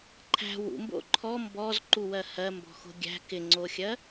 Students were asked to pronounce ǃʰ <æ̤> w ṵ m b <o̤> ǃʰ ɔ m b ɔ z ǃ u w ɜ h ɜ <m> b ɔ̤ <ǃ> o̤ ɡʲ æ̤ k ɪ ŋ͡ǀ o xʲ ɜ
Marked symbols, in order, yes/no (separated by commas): yes, no, yes, no